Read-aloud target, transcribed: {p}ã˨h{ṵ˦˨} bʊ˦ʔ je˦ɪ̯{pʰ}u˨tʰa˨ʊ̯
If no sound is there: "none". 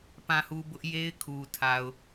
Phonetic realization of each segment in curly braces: p, u˨, kʰ

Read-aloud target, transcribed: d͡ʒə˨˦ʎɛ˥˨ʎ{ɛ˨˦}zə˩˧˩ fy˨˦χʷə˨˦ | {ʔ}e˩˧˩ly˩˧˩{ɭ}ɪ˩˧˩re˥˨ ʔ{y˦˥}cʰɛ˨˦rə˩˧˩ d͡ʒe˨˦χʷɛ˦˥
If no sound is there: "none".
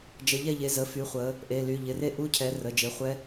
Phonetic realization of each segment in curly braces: e˨˦, ʔ, ʎ, u˦˥

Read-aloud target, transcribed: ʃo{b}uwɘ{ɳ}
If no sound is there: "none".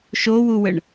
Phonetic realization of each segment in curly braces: w, ɳ

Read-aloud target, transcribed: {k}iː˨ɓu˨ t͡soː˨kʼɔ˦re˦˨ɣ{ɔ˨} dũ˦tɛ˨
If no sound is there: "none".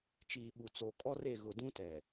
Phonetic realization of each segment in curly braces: t͡ʃ, ʊ˨

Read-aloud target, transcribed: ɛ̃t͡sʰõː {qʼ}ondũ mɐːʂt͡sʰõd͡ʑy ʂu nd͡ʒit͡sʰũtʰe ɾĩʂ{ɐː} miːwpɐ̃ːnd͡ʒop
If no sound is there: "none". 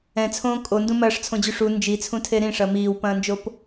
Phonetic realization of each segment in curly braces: kʼ, ɐ

